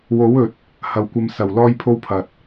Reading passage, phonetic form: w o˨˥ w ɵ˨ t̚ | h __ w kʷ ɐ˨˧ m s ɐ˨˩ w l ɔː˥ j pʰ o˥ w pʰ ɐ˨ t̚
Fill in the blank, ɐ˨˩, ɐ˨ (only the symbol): ɐ˨˩